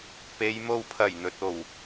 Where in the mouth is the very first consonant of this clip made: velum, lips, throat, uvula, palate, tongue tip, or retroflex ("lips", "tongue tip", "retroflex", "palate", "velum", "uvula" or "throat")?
lips